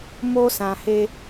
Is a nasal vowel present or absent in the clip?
present